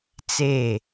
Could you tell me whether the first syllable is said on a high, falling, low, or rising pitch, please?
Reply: falling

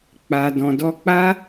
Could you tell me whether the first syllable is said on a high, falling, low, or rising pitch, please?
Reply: low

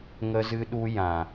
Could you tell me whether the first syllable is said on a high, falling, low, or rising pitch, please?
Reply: high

